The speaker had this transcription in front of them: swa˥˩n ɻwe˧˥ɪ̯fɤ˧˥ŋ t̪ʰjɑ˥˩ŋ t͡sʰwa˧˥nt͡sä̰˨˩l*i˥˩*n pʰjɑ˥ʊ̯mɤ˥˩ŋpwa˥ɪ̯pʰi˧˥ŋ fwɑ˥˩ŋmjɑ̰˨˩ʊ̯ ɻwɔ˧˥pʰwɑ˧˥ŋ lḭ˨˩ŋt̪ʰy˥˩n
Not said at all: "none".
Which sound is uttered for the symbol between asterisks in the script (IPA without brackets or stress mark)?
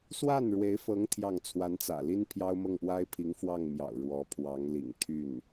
i˥